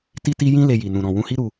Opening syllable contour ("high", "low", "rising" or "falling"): high